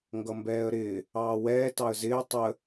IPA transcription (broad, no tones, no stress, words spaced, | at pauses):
ŋɡʌmbɛːə̯ɾɪː | ɑːwɛː tɑə̯zɪː tˤə